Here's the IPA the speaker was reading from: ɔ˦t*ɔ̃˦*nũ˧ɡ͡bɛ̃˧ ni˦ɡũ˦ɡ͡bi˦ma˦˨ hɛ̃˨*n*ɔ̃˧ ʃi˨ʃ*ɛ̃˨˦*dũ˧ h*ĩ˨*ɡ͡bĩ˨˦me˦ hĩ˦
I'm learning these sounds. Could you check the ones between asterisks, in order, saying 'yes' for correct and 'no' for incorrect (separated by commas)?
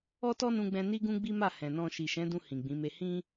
no, yes, yes, yes